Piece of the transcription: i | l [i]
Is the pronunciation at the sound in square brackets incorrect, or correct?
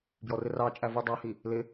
incorrect: ɪ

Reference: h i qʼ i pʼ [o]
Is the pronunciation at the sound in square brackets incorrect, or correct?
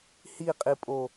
correct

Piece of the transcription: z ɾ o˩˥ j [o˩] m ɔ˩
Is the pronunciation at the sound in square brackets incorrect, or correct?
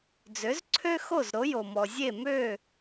correct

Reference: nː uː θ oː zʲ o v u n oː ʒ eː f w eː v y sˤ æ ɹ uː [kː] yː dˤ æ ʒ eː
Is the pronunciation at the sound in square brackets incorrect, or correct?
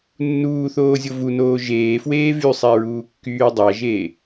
correct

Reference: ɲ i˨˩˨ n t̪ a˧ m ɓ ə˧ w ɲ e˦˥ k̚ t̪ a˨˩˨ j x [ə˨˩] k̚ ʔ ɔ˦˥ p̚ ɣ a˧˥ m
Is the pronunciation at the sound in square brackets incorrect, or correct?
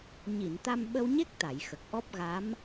correct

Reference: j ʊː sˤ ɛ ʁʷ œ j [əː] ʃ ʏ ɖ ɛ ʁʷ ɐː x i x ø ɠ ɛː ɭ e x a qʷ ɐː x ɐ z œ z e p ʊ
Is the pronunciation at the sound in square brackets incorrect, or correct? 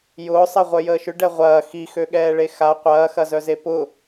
correct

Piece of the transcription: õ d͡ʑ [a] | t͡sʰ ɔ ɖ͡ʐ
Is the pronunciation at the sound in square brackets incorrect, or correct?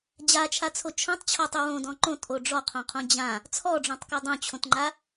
incorrect: ã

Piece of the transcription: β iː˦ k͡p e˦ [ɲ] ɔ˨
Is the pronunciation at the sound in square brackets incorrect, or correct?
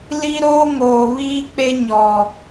correct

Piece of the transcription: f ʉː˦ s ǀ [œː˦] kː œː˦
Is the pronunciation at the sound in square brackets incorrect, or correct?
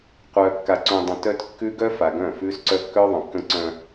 incorrect: œ˦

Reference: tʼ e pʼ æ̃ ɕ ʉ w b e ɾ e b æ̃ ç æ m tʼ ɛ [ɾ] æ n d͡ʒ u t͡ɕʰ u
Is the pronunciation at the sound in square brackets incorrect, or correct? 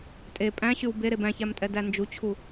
incorrect: d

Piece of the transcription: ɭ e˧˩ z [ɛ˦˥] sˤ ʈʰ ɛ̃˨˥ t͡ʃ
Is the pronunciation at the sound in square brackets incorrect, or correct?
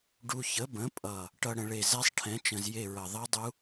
correct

